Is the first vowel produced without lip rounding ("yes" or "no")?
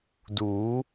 no